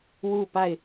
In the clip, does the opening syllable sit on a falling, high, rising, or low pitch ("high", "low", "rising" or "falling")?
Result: falling